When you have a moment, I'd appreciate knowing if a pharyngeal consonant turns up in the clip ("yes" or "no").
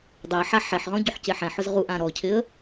yes